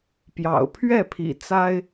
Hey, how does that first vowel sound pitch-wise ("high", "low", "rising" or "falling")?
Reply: low